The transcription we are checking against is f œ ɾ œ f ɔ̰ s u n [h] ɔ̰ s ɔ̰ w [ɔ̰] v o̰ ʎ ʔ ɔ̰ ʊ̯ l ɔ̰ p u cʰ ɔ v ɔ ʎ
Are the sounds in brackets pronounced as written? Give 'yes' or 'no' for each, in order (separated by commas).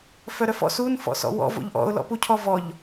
no, yes